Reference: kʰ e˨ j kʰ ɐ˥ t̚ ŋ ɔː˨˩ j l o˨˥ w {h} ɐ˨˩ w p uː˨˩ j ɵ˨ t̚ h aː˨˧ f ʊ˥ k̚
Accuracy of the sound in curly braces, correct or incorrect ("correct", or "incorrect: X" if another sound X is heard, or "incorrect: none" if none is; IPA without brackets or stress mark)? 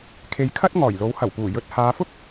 correct